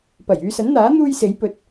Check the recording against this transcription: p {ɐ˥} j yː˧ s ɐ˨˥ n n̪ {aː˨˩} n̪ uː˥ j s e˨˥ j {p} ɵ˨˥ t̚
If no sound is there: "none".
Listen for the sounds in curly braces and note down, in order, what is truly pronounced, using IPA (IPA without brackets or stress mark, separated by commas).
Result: ɐ˨˩, aː˨˥, p